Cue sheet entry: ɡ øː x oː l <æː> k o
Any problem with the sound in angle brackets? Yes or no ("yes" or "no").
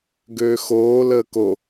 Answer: yes